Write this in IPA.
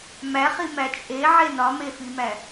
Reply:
mæχimæ t͡ʃʼeʕe nɒmefimæ

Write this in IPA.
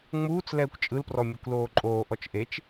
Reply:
ŋ͡muːt͡s lɛːkʷt͡ʃʼɯlprɔ mʲukʷloːǃʼoːʔɔt͡ʃ ʔet͡ʃ

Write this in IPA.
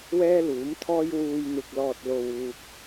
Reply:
wɛː˥luː˨˥mt̪ʰɔː˥j wuː˨jn̪ɪ˨k̚lɔː˨t̚lo˨w uː˨k̚

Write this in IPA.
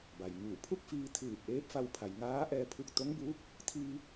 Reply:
ba˩jŋuː˧˩ pʰu˥˨k̚fiː˧t̪ʰɯː˧˩p̚ ʔeː˧˥p̚fa˧wpʰa˩jŋaː˧˥ ʔɛː˧pʰu˧k̚t̪o˧˥ŋbuː˧˥k̚ | t̪ʰiː˧

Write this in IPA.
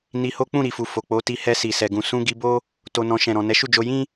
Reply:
ni˧ho˦ k͡pũ˦˨ɾi˨fu˨ fo˨k͡po˨˦ti˧ hɛ˧si˨sɛ˨ɡũ˨ sũ˧ ɡi˧bo˦ | to˧nɔ̃˧ ʃɛ̃˨ɾɔ̃˨ nɛ˨˦ʃu˦˨d͡ʒo˧ jĩ˦

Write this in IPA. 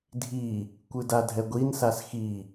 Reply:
dʱi | kʷɯdadʱɛɡʷin sasxi

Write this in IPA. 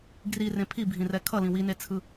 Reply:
ɡrirẽ pʰibʱĩrɛ kʰʌlĩ winet͡sʰɯ

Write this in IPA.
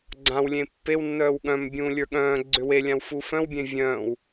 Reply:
ɡ͡ǀãwlʲẽ pːew nːœːwɠœ̃m bʲũːlʲə˞ɠœ̃ː ɡ͡ǀʏwelʲãw fufœ̃wbʲẽ vʲœ̃ːw

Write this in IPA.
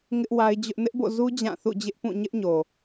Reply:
ŋɪ˦ʔwa˦ɪ̯d͡ʑʊ˦ʔ nɪ˦ʔbo̰˦˨zu˦ d͡ʑã˦˨θṵ˦˨ d͡ʑɪ˦ʔpũ˦˨ ɲɪ˦ʔɲo˨

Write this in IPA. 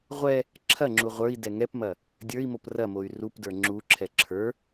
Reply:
ʁʷɛ | ǁʰɐŋ͡ǁu ʁʷə˞i̯ dɛŋɛpmɐ | dʲə˞i̯mop rɐmoy̯ rup də˞ŋ͡ǁuǁʰɛ ǁʰə˞

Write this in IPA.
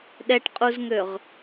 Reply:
ɗɛʈqʼuzŋøʁ

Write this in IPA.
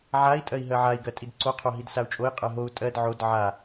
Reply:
ʕai̯ tʼɜi̯ɦɜʕai̯ ɡɜtʼidǀo qʰoɦidsau̯t͡ʃʼoi̯ qʼɜɦou̯ tʼɜd ʕod ʕa

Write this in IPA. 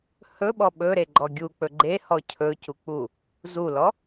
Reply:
hɵɓɔ ɓɵɾeɡ͡ǃɔ ɡʲuk͡pɵ ɡ͡ǃehɔ cʰɵcuk͡pu | zulɔ

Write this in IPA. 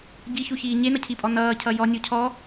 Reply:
ɟiçuçiː ɲenʌcʰipʼɔ nʌːcʰʌ jɔnʲu cʰɔ

